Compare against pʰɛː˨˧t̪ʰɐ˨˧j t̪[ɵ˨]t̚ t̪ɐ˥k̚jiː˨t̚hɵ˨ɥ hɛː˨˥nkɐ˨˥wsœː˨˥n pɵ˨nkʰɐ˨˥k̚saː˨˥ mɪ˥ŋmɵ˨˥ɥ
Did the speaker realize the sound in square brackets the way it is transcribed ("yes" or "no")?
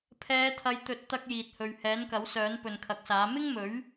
yes